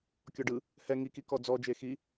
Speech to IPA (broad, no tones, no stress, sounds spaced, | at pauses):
kʲ ɔ ɖ ɯ | h ɛ ŋ i k i k ɔ d͡z ɔ d͡ʒ e x i